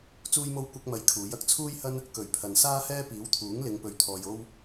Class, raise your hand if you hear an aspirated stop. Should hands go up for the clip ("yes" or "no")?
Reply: yes